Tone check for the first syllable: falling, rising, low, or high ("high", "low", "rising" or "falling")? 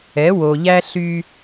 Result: rising